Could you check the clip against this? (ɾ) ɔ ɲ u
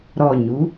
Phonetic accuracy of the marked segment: correct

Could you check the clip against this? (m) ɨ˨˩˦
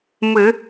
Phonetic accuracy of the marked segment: correct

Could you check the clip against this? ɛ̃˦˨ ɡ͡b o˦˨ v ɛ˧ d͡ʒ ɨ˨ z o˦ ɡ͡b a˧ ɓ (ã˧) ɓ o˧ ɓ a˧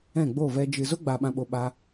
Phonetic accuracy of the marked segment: correct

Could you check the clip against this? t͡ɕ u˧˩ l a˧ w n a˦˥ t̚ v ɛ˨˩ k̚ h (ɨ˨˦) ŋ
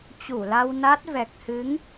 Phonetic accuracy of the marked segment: correct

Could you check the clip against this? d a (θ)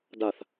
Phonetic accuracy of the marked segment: correct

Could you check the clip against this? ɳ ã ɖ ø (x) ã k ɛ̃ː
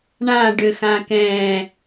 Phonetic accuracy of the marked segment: correct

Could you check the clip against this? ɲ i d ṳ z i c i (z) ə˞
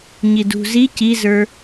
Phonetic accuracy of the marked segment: correct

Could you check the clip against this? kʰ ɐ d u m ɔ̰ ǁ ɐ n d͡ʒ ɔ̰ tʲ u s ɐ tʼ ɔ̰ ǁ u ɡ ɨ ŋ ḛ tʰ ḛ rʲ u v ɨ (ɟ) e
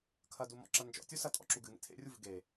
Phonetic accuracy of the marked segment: incorrect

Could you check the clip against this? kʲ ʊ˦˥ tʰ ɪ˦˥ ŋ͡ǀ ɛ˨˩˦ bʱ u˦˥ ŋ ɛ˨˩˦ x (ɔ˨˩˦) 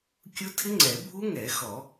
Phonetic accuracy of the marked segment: correct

